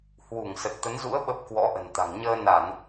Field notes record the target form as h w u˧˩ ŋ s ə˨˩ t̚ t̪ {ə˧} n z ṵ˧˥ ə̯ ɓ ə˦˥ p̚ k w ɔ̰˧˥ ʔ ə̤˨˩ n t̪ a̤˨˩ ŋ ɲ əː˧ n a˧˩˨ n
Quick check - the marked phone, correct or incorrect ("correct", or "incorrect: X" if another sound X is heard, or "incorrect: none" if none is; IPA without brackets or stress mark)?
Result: incorrect: ə˨˦